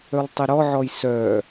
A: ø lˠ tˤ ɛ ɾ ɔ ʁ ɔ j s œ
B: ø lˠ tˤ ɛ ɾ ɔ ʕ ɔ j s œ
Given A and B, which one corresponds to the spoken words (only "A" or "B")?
B